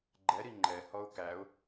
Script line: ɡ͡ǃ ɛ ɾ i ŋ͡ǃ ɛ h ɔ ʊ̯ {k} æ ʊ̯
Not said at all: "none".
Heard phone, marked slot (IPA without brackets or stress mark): k